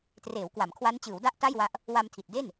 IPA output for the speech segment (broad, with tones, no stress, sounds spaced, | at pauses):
t r eː˩˦ w k w a˩˦ m kʰ w a˦˥ n t͡ɕ ɯː˩˦ w d a˥˩ ʔ t a˥˩ j w a˦˥ ʔ | w a˧ m tʰ i˨˩ t̚ d e˥˩ n